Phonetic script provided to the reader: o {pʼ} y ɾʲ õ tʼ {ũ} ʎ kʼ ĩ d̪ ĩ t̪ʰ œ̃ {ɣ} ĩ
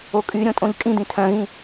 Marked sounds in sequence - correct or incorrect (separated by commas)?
incorrect, incorrect, correct